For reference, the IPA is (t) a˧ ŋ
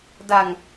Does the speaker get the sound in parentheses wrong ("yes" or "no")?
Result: yes